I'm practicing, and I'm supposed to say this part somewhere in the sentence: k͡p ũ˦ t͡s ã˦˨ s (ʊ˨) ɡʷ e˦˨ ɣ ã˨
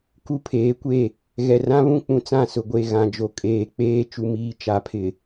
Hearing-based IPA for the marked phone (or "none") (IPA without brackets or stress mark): ʊ˨